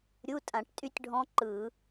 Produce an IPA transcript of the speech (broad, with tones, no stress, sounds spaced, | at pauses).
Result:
ɾʲ u˧˥˧ tʼ ã˧˩˧ ʈ tʼ y˦˥ tʲ ɖʱ ɔ̃˦˥ ǃ ɯ˧˩˧